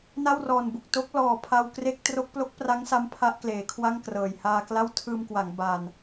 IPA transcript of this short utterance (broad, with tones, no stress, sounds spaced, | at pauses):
n a˥˩ w r ɔː˨˩ n b u˨˩ k̚ t o˦˥ k̚ l ɔː˨˩ pʰ a˧ w k r e˥˩ k̚ t r o˦˥ k̚ p l o˦˥ k̚ p r a˦˥ ŋ s a˦˥ m pʰ a˦˥ ʔ k l eː˩˦ kʰ w a˥˩ ŋ k r ɤː˨˩ j h aː˧ k l a˥˩ w tʰ ɯː˧ m k w a˩˦ ŋ b aː˧ n